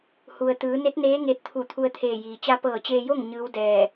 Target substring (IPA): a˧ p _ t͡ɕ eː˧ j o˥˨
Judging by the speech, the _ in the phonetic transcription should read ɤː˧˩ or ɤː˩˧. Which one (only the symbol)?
ɤː˧˩